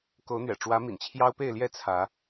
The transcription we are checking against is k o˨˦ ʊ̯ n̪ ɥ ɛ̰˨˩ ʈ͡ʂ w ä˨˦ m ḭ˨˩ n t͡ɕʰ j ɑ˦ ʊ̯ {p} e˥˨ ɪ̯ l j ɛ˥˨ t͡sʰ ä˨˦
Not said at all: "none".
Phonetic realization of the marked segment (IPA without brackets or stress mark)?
p